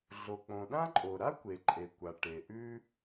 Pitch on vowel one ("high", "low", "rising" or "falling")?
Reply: low